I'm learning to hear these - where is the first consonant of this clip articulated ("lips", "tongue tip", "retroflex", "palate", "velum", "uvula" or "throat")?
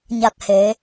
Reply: palate